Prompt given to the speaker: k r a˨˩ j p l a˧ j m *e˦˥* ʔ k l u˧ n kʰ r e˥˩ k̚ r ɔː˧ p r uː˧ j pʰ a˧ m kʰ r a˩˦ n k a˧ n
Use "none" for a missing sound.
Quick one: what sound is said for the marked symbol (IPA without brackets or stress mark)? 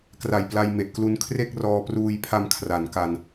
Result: e˨˩